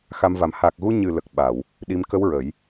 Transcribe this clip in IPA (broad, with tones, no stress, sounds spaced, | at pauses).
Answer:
x a˧ m v a˨˩˦ m h aː˨˩ k̚ ɣ u˧ ɲ ɨ˨˩ l ə˨˩ k̚ ɓ a˨˩˨ w | ɗ i˧˥ m k ə˧˥ w ɹ ə˨˩˦ j